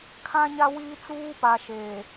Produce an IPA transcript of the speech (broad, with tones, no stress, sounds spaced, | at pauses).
kʰ ã˦ ɲ a˦ w iː˦ t͡s uː˦ p a˨ ʃ eː˨